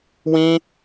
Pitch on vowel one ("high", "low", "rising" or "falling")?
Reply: high